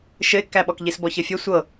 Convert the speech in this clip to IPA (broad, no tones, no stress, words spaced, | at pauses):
ʃɘɪ̯kːæɓɔk ʎisbɔçəfʲə sʷɤ